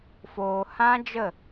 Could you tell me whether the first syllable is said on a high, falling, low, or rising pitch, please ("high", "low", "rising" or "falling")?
low